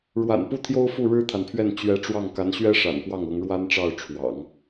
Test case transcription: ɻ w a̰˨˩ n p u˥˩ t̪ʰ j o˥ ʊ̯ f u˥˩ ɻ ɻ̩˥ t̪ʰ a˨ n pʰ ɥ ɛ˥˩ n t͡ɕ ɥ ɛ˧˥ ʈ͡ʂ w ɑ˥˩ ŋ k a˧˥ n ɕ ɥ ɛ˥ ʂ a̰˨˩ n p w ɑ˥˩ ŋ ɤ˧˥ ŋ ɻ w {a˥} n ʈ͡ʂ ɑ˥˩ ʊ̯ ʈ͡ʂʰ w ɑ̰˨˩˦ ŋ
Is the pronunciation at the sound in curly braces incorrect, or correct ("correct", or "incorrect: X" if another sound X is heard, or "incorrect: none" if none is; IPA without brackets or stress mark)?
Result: correct